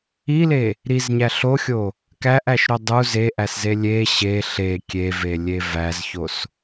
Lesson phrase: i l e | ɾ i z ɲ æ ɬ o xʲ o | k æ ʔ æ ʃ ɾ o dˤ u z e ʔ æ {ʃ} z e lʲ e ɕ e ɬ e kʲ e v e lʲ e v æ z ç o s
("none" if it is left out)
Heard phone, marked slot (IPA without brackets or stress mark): s